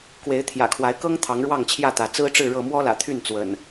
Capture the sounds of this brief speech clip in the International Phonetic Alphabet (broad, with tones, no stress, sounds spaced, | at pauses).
k w e˨˦ ɪ̯ t̪ʰ j ä̰˨˩ kʰ w a˨˦ ɪ̯ k ɤ˦ ŋ t̪ʰ ɑ˨˦ ŋ ɻ w ɑ˥˨ ŋ t͡ɕʰ j ä˥˨ t̪ ä˨˦ t͡s ɹ̩˦ ʈ͡ʂ ɻ̩˥˨ ɻ ɤ˥˨ m w ɔ˦ l ä̰˨˩ t̪ʰ y˥˨ n t͡s w ə̰˨˩ n